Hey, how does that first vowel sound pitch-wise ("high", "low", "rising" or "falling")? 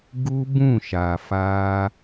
high